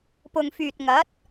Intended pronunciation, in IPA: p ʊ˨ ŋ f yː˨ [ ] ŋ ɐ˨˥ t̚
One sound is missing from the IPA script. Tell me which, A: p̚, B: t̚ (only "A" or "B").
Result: B